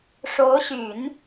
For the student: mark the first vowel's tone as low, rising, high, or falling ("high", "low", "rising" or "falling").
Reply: rising